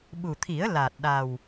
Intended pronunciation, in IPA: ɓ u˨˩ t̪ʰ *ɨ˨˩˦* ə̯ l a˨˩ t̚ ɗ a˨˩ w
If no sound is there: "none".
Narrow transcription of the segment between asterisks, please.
i˨˩˦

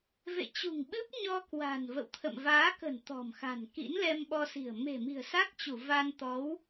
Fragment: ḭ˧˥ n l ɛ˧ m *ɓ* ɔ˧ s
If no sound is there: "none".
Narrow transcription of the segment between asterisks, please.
ɓ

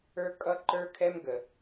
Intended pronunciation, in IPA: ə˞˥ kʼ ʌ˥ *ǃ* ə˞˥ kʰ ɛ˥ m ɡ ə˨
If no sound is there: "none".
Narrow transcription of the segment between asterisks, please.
ǃ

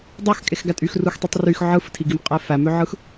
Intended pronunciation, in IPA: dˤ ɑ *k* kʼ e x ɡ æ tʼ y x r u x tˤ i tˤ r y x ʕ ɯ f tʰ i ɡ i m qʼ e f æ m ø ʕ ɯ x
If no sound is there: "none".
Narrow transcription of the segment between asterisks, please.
x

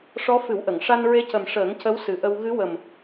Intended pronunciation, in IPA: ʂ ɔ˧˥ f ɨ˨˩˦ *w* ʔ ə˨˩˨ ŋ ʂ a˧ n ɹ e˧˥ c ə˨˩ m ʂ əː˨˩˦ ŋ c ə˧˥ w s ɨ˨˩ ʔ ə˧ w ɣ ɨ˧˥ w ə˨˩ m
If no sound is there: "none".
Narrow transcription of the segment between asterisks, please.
w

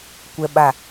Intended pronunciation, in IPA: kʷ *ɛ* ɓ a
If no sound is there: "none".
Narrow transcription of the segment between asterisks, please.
ɛ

